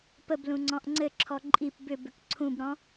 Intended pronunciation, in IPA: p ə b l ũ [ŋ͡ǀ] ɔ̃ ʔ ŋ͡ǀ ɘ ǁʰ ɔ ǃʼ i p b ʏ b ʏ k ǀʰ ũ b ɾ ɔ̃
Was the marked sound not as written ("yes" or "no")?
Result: no